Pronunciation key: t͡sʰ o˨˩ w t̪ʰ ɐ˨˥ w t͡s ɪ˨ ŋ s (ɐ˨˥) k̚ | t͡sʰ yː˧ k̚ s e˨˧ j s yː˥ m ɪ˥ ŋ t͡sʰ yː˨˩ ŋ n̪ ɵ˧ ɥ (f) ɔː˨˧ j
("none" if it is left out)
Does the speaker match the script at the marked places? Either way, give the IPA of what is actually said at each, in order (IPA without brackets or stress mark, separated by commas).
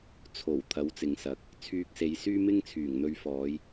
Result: ɐ˨˥, f